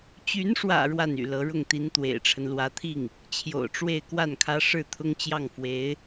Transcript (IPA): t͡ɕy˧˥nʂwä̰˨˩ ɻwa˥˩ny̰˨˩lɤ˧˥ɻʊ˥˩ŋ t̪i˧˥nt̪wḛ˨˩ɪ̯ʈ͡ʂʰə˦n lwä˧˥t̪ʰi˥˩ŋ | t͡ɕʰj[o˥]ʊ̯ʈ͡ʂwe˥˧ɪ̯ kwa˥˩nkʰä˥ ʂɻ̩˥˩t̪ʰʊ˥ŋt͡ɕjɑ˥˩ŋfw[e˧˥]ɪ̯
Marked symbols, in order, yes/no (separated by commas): no, yes